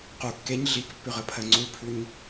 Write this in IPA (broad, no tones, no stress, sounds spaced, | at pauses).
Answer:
q u kː e ɲ ɮ i k pː ʉ ʁ ə pʰ ɜ ŋ͡ǀ u pʰ ʉ ɲ